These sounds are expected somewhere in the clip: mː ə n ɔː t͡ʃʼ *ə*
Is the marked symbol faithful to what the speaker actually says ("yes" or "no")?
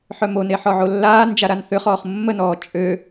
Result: no